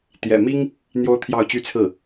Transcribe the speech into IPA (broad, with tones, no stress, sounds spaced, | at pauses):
t̪ j ɛ̰˨˩ m i˥ ŋ | n̪ j o˥ ʊ̯ t̪ʰ j ɑ˥˧ ʊ̯ t͡ɕ y˥˧ t͡sʰ ɹ̩˥˩